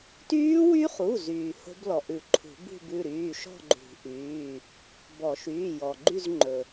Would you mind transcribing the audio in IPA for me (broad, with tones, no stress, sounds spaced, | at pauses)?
t yː˦˥ w y˦˥ χ u˩˧˩ z yː˩ h o̤˦˥ b l ɔ˩ ʔ ʉ˨˩˦ ǃʰ ṳ˨˩˦ b ṳ˥˧ b ʉ˩˧˩ ɾ yː˩˧˩ ʃ ɔ̤˥˧ ɡ͡ǃ ṳ˨˩˦ ʔ yː˩˧˩ | b ɔ˨˩˦ ʃ yː˩˧˩ j ɔ˩ ɡ͡ǃ y˥˧ z ŋ͡ǃ ɵ˩